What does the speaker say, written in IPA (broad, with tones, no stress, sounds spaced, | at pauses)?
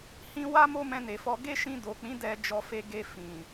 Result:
h ĩ˧ w a˦ m o˦ m ɛ̃˧ n e˨ f ɔ˧ ɡ e˦ ʃ ĩ˧ d o˨ k͡p ĩ˨˦ d ɛ˧ d͡ʒ ɔ˧ f e˧ ɡ e˧ f ĩ˨